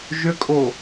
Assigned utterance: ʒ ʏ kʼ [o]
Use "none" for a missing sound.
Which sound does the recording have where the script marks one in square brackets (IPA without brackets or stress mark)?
o